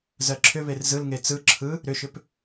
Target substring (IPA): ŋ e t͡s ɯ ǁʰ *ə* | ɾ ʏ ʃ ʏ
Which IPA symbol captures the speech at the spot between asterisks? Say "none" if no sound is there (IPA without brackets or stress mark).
ɯ